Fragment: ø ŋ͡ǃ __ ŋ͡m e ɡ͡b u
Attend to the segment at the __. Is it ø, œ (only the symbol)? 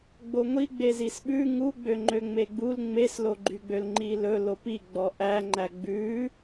ø